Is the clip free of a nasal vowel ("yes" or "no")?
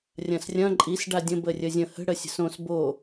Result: no